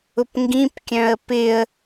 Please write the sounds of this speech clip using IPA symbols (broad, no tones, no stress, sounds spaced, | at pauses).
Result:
ʊ p ŋ ɡ ĩ p kʲ œ̃ ə̯ p ɪ ə̯